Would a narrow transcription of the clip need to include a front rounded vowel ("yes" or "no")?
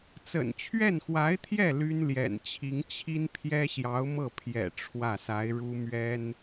yes